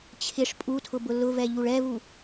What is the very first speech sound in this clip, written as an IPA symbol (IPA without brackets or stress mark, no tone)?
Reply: t͡ɕʰ